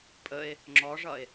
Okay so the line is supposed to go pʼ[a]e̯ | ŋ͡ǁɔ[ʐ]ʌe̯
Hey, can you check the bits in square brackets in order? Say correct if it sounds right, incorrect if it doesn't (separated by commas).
incorrect, correct